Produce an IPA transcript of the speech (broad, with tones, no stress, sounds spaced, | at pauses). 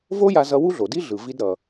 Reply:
v o˥ j a˧ z ʌ˧ w u˥ ɮ o˩ d i˥ ɮ ɯ˩ v i˧ d ɾ ʌ˩